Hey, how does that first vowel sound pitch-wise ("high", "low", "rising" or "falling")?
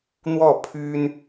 falling